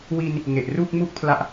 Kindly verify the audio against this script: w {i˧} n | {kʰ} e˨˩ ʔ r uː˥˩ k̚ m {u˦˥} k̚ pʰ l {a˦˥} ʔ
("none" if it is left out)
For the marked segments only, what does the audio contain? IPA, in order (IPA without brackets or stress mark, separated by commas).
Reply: i˧, ŋ, u˥˩, a˦˥